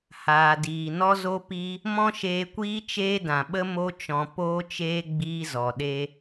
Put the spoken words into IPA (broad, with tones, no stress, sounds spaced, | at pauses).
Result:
h aː˨ d iː˨ n ɔ˦ z o˦ p i˦ | m ɔ̃˦ ʃ eː˧ kʷ iː˦ t͡ʃ eː˦ d ã˨ ɓ ə˦ m o˦ t͡ʃ ɔ̃˧ p oː˦ t͡ʃ eː˦ ɡ͡b iː˦ z ɔ˨ ɗ e˦